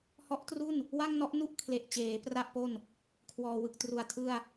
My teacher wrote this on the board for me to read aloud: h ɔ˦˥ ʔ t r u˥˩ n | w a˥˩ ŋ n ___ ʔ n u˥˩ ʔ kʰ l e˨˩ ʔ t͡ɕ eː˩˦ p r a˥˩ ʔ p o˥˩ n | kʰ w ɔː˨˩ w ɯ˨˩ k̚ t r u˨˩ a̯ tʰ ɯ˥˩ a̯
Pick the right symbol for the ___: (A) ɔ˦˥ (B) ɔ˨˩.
A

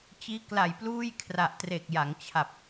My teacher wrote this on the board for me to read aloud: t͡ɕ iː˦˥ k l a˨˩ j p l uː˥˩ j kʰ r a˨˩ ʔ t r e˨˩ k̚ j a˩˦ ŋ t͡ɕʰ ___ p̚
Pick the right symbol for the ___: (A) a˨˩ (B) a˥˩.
A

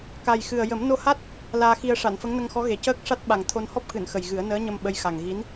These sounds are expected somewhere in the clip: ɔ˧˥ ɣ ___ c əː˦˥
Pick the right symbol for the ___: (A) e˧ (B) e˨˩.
B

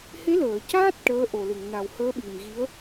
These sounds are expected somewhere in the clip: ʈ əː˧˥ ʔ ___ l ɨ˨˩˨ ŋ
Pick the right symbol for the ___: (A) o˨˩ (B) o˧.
A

